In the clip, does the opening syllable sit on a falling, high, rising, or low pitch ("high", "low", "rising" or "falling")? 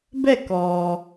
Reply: falling